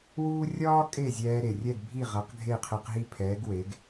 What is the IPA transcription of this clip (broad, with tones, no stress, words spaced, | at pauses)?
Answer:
wuː˥ rʲɒː˥kʼe˥˩zʲɛː˧ ɾe˩rʲɛ˥˩ɡbʱi˥˩ʁɐ˩˥q ɡʱe˥˩qʰɛ˧qɦi˥˩pʰɛː˩˥ɡ we˩˥ɡ